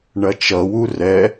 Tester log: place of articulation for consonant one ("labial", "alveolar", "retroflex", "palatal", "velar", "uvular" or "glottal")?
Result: retroflex